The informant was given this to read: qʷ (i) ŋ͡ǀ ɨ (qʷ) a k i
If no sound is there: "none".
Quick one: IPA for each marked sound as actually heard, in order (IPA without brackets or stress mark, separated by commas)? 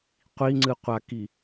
i, qʷ